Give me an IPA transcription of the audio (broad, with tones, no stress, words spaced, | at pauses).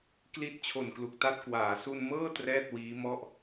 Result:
kli˦˥t̚ t͡ɕʰo˨˩nklu˨˩k̚ta˥˩t̚ kwaː˩˦su˧nmɤː˥˩ trɛː˥˩t̚wiː˦˥mɔ˥˩ʔ